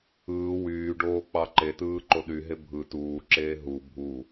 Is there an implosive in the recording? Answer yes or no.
yes